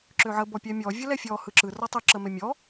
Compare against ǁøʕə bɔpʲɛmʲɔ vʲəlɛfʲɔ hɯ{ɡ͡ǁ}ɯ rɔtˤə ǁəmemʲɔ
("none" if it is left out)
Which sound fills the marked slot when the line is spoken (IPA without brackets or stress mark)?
ǁ